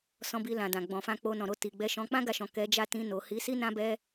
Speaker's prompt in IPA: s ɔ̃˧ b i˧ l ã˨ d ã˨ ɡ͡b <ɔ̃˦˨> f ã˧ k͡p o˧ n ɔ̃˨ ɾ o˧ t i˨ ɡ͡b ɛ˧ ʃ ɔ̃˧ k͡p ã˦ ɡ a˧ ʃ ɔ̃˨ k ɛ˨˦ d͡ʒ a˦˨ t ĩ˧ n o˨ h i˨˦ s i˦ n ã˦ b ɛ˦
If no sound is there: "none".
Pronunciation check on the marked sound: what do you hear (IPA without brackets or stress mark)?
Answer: ɔ̃˨